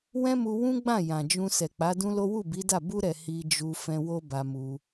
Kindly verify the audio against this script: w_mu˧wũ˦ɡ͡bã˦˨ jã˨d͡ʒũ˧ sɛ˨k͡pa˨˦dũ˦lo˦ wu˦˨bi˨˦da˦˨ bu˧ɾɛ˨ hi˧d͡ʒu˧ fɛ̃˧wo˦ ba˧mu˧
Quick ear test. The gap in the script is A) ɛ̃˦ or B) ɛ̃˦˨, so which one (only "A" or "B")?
A